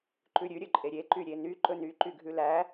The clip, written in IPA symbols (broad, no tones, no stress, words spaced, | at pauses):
ǃʉɾʲʉ ɾʲɵǃʼeɾʲe ǃyɾʲeny ǃɵny ǃyɡʱʉlæ